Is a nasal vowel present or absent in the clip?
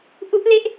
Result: absent